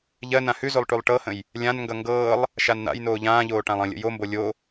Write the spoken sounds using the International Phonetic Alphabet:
ʎɜ nãhʉzolˠ ʈʉlˠʈɤhə̃j | lʲãnŋɡʌ ŋɡɤːlˠ | ʃann̪a̰jnoː ʎãːʎoː ʈãlˠə̃lʲə̰ jombo lʲo

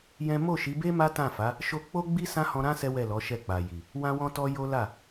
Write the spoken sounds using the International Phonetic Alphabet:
jɛ̃˦ mo˦˨ʃi˨˦be˦ ma˦tã˦˨fa˨˦ | ʃo˦ k͡po˦ɡ͡bi˦ sã˦hɔ̃˧ɾã˦ sɛ˦wɛ˦˨lɔ˨˦ʃɛ˦˨ k͡pa˨ji˨ | wã˦wɔ̃˦tɔ˦ jo˦la˦˨

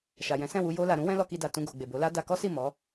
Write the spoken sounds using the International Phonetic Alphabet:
ʃa˨jɛ̃˨˦sɛ̃˦˨wu˧ jo˧la˨ɾũ˨˦ wɛ̃˦lɔ˧ki˧da˨ tũ˧ɡo˨ɡ͡be˨ bo˨˦la˦ da˧kɔ˦si˦˨ mɔ˨˦

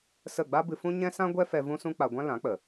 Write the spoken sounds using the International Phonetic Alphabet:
sə˦˨ ɡ͡ba˦bɨ˧fũ˦ ɲɛ̃˦sã˦ ɡʷɛ˦fɛ˧ vũ˦sũ˦k͡pa˧ ɡʷã˦lã˨˦ k͡pə˨

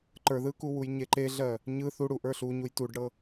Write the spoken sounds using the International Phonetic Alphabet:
ǃə˞ðɯkuwuj ɲeǃeɮɜ | ɲɯ θuɽu ʔə˞ɬuɲuj tuɖɽɤ

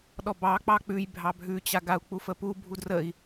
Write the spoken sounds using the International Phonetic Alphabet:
ɗɔbɑk͡pɑ k͡pʉj bʱɑbʱʉt͡ɕa ɡau̯k͡pufəpu bʱudrəi̯

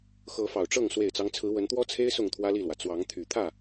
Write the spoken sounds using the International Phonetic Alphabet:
xɤ˨˦fɑ˨˩ʊ̯ʈ͡ʂɤ˥˨ŋ swe˨˩ɪ̯t͡sɑ˦ŋt͡sʰɹ̩˨˦ wə˨˦nt̪wɔ˦t͡sʰe˦ɪ̯ sʊ˥˨ŋt̪ʰwä˦li˥˨lwä˩ t͡swɑ˨˦ŋt̪ʰy˨˩t̪ʰä˥˨

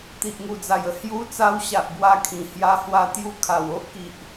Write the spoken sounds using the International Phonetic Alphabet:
t̪i˨ʔŋu˨˩d͡za˨˩jə˧ hju˧ t͡sa˧wɕa˨ʔ bwa˧kʰĩ˨˩hja˧ hwa˧t̪ju˧ kʰa˨˩wo˦ʔki˨ʔ

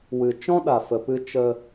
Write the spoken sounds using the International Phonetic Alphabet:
wɨ˧ t͡ʃɔ̃˦ɗa˨fə˨pɨ˧ t͡ʃə˧

